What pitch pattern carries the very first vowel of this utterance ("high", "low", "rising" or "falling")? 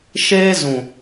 high